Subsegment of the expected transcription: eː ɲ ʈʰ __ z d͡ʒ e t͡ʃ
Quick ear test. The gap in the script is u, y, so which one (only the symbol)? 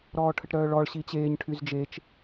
y